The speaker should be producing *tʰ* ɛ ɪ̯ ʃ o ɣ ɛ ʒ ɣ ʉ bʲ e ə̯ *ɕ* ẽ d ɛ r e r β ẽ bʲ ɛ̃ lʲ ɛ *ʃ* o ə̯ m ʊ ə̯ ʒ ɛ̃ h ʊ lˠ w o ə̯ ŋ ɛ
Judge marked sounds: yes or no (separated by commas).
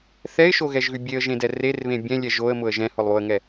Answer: no, no, no